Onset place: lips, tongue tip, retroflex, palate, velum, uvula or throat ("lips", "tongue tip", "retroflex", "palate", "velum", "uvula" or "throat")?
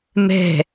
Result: lips